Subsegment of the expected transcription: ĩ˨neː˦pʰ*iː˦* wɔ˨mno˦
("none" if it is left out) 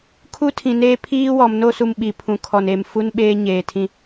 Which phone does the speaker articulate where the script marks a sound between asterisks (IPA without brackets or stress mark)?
iː˦